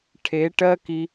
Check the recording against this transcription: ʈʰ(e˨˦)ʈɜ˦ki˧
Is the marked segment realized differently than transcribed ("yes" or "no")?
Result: no